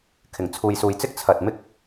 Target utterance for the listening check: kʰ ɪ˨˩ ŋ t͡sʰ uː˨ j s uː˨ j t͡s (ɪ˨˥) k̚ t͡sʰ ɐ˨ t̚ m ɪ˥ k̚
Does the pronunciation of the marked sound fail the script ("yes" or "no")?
yes